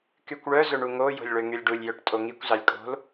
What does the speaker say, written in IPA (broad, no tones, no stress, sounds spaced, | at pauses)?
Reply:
k y kʷ ɭ œ z ɵ ɳ u ŋ o j o̤ lʲ ɭ ø ŋ y lʲ ɖ u lʲ j œ ʈ tʼ o ŋ i kʷ z ɑ lʲ kʼ o̤ l